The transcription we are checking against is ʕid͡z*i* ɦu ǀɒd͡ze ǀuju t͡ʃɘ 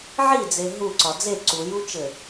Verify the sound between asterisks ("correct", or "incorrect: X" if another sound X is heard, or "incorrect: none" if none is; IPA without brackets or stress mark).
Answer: incorrect: e